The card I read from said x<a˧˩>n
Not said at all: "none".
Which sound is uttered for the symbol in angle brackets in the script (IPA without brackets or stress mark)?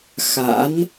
a̰˧˥